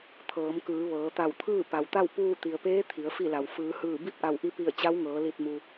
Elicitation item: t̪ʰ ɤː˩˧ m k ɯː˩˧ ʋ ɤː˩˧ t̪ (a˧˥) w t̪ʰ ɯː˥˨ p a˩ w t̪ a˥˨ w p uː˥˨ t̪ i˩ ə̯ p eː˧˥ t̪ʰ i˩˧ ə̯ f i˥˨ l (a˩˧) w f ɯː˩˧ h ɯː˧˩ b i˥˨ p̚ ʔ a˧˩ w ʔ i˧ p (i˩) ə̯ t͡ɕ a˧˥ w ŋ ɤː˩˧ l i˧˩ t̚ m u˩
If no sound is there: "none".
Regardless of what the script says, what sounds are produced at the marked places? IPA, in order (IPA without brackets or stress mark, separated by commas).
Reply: a˧˩, a˩, i˧˩